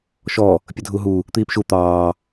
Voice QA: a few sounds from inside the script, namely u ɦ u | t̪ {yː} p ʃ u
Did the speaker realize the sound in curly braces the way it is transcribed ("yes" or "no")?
no